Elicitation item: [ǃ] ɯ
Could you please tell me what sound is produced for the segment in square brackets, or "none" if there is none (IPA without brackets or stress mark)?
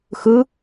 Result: x